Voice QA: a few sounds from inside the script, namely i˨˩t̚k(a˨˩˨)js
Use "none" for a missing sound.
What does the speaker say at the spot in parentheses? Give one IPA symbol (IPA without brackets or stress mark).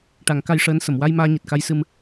a˧